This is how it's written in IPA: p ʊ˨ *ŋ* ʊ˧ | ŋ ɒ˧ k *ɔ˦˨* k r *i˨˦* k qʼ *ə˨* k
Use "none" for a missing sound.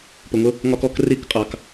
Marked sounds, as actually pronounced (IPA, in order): ŋ, ɔ˦˨, i˨˦, ɑ˨

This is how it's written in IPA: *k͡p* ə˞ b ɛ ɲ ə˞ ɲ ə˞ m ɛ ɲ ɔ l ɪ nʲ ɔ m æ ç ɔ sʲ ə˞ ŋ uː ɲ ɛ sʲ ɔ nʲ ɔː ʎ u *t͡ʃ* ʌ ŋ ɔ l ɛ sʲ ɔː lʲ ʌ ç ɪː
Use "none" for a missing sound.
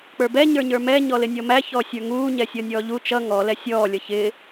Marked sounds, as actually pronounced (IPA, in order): k͡p, t͡ʃ

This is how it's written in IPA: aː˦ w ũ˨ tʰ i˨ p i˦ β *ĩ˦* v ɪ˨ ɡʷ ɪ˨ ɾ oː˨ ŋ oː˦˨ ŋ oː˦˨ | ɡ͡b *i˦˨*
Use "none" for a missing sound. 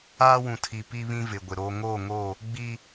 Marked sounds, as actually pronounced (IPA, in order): ĩ˦, i˦

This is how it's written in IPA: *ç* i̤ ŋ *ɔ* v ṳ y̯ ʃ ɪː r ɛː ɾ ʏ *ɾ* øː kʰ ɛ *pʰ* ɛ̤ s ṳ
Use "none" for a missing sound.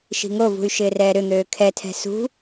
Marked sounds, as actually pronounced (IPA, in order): ʃ, o, n̪, tʰ

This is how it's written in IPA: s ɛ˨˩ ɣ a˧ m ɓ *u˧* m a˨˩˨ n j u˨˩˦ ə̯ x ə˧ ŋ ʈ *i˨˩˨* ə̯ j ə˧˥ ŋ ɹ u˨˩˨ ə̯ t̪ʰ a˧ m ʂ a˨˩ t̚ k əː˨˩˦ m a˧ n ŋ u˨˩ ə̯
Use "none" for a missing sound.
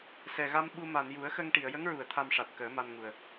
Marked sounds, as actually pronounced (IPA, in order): u˧, i˨˩˨

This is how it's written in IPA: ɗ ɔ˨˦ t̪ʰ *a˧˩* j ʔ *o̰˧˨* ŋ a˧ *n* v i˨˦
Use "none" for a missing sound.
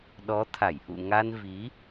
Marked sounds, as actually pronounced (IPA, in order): a˧˩, ṵ˧˨, n

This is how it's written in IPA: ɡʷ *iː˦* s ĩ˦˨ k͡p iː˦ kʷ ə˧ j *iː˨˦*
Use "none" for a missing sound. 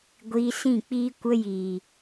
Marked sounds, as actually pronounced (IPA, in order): iː˧, iː˨

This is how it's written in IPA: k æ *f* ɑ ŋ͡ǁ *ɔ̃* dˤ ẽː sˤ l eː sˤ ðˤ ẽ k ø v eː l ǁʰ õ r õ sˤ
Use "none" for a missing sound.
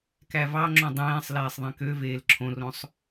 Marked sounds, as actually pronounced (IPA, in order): v, õ

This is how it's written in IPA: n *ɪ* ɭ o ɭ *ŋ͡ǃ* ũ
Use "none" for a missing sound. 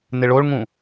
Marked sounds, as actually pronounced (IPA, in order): ɪ, ŋ

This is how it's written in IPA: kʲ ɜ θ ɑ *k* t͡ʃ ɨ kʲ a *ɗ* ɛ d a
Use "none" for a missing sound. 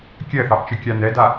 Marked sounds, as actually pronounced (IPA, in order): ʔ, n

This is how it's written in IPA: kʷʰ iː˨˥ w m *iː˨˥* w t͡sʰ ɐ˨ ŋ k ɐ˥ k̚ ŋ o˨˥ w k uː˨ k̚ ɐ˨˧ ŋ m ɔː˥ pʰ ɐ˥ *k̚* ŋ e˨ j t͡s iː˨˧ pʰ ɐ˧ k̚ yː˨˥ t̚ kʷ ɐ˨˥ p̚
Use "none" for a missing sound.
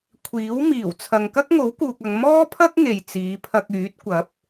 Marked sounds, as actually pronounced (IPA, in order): iː˨˩, k̚

